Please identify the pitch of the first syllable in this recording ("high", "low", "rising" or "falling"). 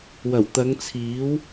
low